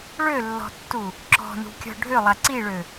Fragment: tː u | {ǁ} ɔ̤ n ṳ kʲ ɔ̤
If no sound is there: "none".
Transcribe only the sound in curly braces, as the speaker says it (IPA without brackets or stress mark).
ǁ